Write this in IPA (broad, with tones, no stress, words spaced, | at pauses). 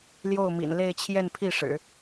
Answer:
ljo˥˩ʊ̯mḭ˨˩n le˥˧ɪ̯t͡ɕʰjɛ˥˧npʰi˥˩ʂɻ̩˨˩˦